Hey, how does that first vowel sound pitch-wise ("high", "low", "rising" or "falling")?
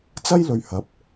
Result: high